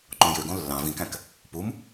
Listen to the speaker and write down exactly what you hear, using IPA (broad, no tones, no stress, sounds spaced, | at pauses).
ǃ õ j ø ɡ õ lː ɑ̃ v ĩ k æ̃ k | p u m